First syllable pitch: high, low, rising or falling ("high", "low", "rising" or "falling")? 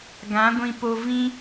rising